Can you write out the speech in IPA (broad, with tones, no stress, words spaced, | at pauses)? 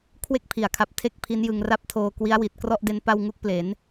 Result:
kʰwe˥˩k̚pʰi˩˦a̯kʰa˨˩p̚ tʰe˥˩k̚ pʰi˦˥njɯ˧ŋra˥˩p̚tʰoː˧ kwi˦˥a̯wi˨˩t̚ krɔ˥˩ʔde˧n pa˧w ŋu˦˥k̚ple˩˦n